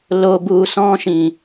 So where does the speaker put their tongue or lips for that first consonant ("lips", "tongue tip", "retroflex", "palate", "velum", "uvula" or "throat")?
tongue tip